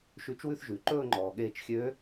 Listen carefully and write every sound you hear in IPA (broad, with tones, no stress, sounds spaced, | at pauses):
ʃ ʉ˧˥ t͡ʃ w ʉ˥˧ θ ʒ ʉ˩ ǃ ɵː˥˧ ŋ͡ǃ ɔː˩ ɠ eː˧˩ t͡ʃ xʲ øː˧˥